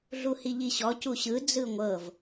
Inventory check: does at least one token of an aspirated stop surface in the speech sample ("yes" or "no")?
no